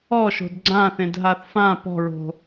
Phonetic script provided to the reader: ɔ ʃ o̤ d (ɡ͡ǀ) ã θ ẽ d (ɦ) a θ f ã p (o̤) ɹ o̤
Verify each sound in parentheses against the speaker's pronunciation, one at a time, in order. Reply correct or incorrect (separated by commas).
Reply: correct, correct, incorrect